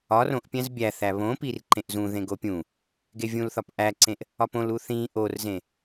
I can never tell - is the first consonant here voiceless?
no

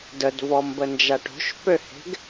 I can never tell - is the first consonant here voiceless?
no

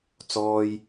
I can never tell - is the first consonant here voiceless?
yes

